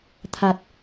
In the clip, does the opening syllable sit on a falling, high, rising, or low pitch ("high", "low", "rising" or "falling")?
low